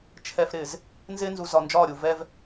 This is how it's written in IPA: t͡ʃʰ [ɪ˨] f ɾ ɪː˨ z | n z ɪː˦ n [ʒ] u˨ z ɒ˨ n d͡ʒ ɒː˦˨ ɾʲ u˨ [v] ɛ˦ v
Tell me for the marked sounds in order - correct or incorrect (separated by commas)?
incorrect, incorrect, correct